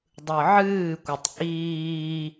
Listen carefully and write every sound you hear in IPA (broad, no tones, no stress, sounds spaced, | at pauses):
dˤ ɯ ʕ ɨː kʷ ɪ tˤ ʔ iː